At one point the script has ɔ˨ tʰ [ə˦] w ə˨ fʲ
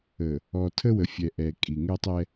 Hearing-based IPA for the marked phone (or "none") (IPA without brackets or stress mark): ə˦